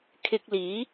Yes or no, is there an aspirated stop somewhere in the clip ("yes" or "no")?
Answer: yes